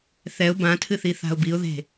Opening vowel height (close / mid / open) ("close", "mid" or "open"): mid